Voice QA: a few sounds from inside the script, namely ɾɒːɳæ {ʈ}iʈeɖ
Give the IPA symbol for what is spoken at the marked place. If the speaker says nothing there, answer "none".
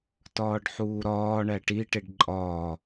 ʈ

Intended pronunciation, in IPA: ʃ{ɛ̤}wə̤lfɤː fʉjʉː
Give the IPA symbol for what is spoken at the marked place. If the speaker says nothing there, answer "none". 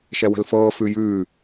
ɛ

